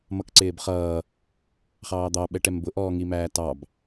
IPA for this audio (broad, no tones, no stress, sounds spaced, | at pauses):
m ʌ k ǀ ɪː b χ ʌː | χ ɑː d̪ ɑ ɓ ɛ ʈ ɛ m b ʊ ʔ ɔː ŋ i m æː t ɑ b